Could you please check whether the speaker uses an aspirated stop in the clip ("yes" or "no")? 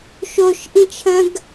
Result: yes